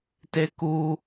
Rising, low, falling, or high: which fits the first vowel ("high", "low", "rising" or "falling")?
high